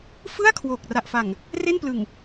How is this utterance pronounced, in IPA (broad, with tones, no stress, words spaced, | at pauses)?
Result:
fɯ˥˩a̯kʰwo˨˩k̚ ra˨˩ʔfa˨˩ŋ | re˥˩nplɯ˨˩ŋ